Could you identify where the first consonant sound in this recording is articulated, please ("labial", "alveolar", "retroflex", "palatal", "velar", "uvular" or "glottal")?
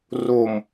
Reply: alveolar